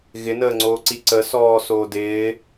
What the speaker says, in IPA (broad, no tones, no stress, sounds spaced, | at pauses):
ɣ ɪ n əː ŋ͡ǀ oː ǀ i ǀ ə s ɔː s oː d ɪː